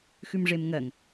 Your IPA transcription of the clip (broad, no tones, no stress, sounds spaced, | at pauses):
x ʉ m ʐ e m ŋ ɜ ŋ